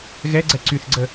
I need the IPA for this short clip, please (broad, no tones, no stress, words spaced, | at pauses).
ɣɛɡ͡ǀɛ ǀyθɡ͡ǀə